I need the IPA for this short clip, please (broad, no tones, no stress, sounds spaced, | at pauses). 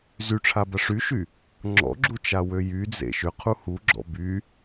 z y ʈ͡ʂʰ a b ɐ ʂ y ʃ y | ŋ͡ǁ ɔ̰ ɡ͡ǁ u t͡ʃ a w ø j y d͡z ḛ ʃ ʏ qʰ u h u ɡ͡ǁ ɔ̰ b y